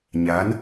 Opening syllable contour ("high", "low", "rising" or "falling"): rising